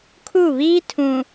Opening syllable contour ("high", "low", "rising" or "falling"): falling